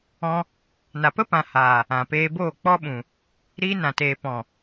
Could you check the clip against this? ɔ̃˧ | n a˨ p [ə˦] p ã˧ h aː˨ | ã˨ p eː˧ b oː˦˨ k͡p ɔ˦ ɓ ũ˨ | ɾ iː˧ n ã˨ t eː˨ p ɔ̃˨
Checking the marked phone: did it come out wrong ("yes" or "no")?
no